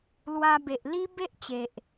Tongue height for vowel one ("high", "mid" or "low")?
low